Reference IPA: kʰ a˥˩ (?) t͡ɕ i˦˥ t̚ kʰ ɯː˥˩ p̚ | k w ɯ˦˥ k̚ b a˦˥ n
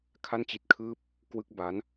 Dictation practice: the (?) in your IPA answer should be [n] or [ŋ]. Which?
n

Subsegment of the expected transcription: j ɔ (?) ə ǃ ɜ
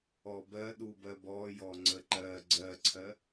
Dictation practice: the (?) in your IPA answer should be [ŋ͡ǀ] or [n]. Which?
ŋ͡ǀ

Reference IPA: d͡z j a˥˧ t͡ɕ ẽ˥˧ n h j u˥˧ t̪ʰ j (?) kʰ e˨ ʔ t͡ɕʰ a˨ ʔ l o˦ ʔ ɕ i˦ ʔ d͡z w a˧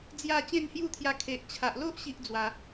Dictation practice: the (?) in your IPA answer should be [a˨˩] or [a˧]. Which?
a˧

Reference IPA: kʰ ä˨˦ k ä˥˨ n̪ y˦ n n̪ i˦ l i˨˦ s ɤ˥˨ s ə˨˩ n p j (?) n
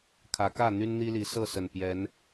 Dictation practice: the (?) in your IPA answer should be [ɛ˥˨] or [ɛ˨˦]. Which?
ɛ˨˦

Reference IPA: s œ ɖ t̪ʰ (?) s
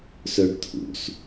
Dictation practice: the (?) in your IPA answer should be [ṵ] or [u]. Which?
ṵ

